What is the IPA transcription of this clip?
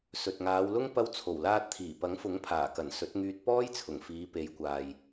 s ɵ˨ t̚ ŋ aː˨˧ w l ʊ˥ ŋ p ɐ˧ w t͡sʰ o˨˩ w l aː˧ t̚ t̪ʰ iː˨˩ p ɐ˨˥ ŋ f ʊ˨˥ ŋ pʰ aː˨˩ k ɐ˨˩ n s ɵ˨˥ t̚ ŋ yː˧ t̚ p ɔː˥ j t͡sʰ ʊ˨˩ ŋ f iː˨˧ p e˨˧ j kʷ aː˨ j

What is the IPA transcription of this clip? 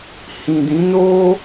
h ĩ˨ d ĩ˨˦ n o˦

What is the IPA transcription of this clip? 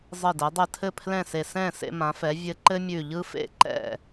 zˤ ɘ˧˩ d ɛ˩˧ dˤ ɵ˧˩ tʰ ɘ˥˩ pʰ l ɛ̃˥˩ s e˧˩ s ɛ̃˥˩ s ḛ˧ m ã˩˧ f ɛ˩˧ vʲ ɘ˧ ǃ ɘ˥ mʲ ʉ˧˩ ʎ ɯ˥ f ḛ˥˩ ǃ ɛ̰˥˩

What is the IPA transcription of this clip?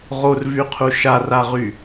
ʁ o r v y qʰ u ʃ a r a ʁ y

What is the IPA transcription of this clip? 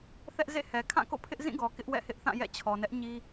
θ ɛ˦ ʔ z ḛ˦˨ h ɛ˨ kʰ ã˦˨ k o̰˦˨ pʰ ɪ˦ ʔ z ĩ˦˨ ɡ ɔ˨ k ɪ˦ ʔ w ɛ̰˦˨ h ɪ˦ ʔ θ ã˦˨ j ɛ̰˦˨ t͡ɕʰ ɔ˨ n ɛ˦ ʔ ɲ i˦

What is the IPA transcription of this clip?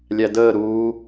lʲ æ d əː ɾ uː

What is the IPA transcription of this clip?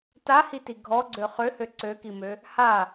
t a h i t i ɡʱ ɔ ɡ͡ǀ ø χ ø h ø ǀ ø k i m ø | h a

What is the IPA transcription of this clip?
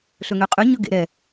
ɬ ɵ ŋ ø qʼ ʉ ɲ ɵ ɡ ḛ ɾ ɛ

